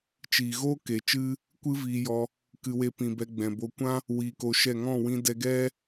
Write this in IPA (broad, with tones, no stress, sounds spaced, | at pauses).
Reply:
t͡ʃ iː˨ ɣ oː˦ k e˨ t͡ʃ ɨ˦ | kʷ ɨ˦ v iː˧ j ɔ˧ | k ɨ˧ w e˧ p ĩ˨ b ɛ˧ ɡ͡b ɛ̃˨ b o˧ kʷ ã˦ | w iː˧ k o˧ ʃ ɛ˦˨ ŋ ɔ̃˦˨ w ĩ˧ d ɛ˧ ɡ ɛ˦